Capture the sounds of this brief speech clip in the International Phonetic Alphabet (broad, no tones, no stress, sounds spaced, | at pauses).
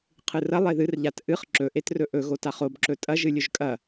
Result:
qʰ ɨ r ɐ lˠ e ð ɨ r ʎ a t ʔ ɨ χ ǁ ɵ ʔ e t r ɵ ʔ ɵ ɣ o t a χ o b ǁ ɵ tʼ ɐ ʒ ɨ lʲ ɵ ʒ kʼ ɐ